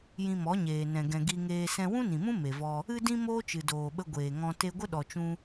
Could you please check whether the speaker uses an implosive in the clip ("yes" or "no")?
yes